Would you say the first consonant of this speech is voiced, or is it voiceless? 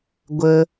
voiced